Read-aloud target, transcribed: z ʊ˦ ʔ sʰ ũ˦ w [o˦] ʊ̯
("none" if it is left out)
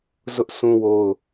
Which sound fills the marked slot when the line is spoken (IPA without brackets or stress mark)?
o˦